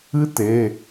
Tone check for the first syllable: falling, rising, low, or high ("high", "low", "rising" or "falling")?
high